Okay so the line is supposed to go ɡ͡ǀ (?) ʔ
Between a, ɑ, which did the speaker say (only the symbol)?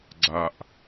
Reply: a